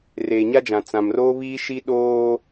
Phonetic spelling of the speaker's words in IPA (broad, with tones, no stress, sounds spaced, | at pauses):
r eː˨ ɲ a˦ d͡ʒ ã˨ t͡s ã˨ m r oː˦ β iː˦ ʃ i˦ ɗ oː˦